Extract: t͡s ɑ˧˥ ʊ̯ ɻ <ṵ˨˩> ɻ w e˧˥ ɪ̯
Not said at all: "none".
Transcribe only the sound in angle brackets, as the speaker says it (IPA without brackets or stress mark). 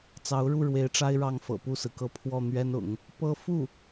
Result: u˥˩